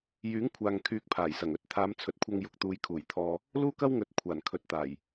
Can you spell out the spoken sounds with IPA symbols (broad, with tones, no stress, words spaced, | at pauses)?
jyː˨˥ŋkʷʰaː˨ŋ kʰyː˧k̚pʰaː˨˩jsɐ˨˩ŋɵ˨˥t̚ t̪ʰaː˨˧mt͡sʰɵ˨t̚kʷʰɐ˧ŋ jʊ˨k̚t̪uː˨˧jkʰuː˨˩j t̪ʰɔː˧ | luː˥kɐ˥wŋɵ˨˥t̚ kʷʰaː˨˩nkʰɵ˨˥t̚t̪aː˨˩j